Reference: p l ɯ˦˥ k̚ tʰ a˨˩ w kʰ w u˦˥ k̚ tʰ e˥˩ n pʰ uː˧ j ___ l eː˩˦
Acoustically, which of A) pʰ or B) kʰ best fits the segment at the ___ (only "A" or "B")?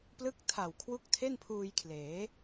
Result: B